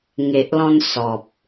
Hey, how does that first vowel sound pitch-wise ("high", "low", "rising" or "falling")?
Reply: low